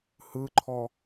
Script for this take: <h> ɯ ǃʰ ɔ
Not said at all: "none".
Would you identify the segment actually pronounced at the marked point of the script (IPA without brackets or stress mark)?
h